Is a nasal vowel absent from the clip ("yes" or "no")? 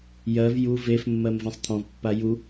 no